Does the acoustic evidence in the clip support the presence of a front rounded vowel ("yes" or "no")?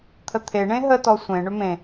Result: yes